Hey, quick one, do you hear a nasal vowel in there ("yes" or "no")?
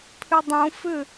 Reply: yes